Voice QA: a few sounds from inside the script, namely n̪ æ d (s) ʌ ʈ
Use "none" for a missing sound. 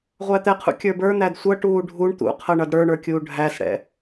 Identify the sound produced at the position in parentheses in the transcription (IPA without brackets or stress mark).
sʷ